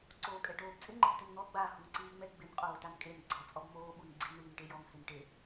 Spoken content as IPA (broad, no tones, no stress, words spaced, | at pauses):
ǀoːkʼɛʈoːbt͡sʼɪ ŋ͡ǃɪbtɪnn̪ɔ ɡ͡ba huŋǀiːŋ͡mɛ ɡ͡bɪn qʼoːtankʼen ɡ͡ǀɔ t͡sʼɔbmoː ɓunɡ͡ǀin ɳiːnʈejɔŋ hɪnʈe